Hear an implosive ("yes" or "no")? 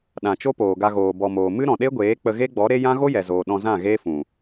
yes